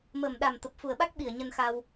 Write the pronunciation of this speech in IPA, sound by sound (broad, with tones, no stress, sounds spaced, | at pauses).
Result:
m əː˨˩ m ɗ a˨˩ m t̪ ə˨˩ p̚ f u˨˩ ə̯ ɓ a˦˥ k̚ ɓ i˧˩ ə̯ ɲ ə˧ n x a˧ w